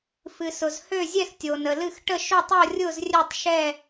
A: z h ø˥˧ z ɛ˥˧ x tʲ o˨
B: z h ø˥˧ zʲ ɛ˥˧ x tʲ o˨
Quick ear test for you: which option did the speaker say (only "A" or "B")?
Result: B